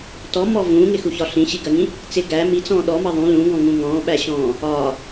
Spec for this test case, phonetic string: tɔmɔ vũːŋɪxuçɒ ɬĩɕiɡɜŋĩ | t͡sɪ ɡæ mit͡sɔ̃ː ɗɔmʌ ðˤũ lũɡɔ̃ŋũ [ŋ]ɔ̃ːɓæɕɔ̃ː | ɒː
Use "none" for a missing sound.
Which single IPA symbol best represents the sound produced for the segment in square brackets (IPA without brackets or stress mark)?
ŋ